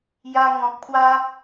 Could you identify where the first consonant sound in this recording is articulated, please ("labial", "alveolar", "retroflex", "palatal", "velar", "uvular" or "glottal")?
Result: palatal